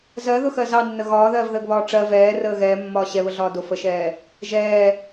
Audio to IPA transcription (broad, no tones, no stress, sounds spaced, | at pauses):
z ɜ ð ʊ x ɜ z ɑ nː ə ɣ ɒː ð ɜː v ð əː ɡ β ɒː ʈ͡ʂ ɜ v ɛː r əː ɣ ɛː mː ɒː ɕ ɛ β ə ɮ ɒː d ʊ f ə ʃ ɛː | ʒ ɛː